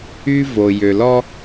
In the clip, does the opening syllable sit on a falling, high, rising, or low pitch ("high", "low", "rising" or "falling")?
high